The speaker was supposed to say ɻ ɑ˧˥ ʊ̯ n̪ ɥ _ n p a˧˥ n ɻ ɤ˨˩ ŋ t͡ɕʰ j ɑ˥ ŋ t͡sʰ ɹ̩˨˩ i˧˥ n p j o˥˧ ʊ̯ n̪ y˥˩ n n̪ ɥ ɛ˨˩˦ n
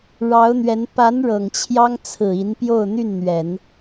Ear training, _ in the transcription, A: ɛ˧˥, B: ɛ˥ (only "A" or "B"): A